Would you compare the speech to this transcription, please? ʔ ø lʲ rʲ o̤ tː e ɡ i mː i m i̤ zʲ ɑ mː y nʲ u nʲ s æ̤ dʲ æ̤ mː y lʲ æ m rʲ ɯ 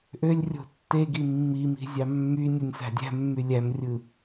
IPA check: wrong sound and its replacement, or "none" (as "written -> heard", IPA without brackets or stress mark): none